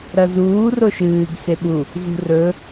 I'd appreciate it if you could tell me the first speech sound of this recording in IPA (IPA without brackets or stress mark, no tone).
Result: ɾ